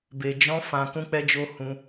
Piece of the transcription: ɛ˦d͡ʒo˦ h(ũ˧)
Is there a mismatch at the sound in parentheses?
no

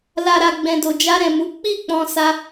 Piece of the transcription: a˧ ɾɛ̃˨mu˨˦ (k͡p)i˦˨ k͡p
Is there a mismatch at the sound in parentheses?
no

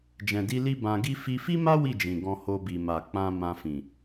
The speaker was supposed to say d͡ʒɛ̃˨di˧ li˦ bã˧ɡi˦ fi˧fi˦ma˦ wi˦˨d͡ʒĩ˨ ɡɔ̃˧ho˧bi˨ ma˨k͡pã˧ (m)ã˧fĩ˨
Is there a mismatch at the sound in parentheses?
no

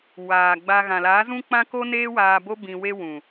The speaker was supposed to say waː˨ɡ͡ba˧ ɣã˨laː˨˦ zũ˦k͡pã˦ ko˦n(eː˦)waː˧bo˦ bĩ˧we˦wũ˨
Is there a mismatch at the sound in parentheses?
no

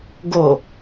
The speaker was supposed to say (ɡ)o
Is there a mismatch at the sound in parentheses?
no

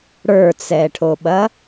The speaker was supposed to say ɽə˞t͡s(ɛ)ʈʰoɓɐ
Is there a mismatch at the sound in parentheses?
no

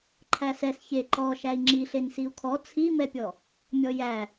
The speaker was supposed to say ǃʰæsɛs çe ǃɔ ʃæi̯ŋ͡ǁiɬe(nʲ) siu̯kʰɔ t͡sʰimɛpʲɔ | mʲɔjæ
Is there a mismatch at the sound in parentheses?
yes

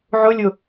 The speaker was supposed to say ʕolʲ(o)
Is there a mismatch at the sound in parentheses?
no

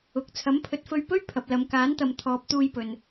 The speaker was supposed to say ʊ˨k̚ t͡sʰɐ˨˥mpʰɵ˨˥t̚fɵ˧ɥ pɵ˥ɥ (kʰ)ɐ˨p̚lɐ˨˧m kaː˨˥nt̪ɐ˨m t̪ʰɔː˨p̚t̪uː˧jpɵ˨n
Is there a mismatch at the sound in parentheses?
yes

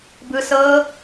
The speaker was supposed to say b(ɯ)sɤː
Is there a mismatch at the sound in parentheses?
no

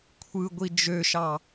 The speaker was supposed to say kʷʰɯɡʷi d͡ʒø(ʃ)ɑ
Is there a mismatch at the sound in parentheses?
no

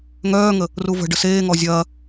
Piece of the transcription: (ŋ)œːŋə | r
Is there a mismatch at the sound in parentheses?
no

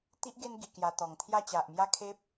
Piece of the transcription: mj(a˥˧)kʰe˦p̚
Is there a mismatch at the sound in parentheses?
no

